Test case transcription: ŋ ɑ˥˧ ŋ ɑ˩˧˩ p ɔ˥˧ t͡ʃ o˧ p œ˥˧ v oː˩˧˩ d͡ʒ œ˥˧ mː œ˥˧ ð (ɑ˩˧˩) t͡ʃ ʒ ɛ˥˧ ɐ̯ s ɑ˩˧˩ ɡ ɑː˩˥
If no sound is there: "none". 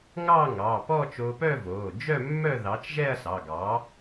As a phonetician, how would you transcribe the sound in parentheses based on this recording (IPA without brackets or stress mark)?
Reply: ɑ˩˥